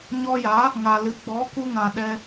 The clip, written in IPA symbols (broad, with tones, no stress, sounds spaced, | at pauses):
ɲ ɔ˧ j a˨˦ | ŋ a˨ l ɨ˨˦ ɡ͡b ɔ˨˦ k u˧ ŋ ã˨ ɗ ɛ˧